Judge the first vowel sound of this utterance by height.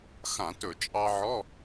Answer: low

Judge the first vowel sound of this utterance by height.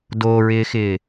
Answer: mid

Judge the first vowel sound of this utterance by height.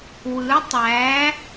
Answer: high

